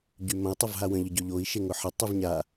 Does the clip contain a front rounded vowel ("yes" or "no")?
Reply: yes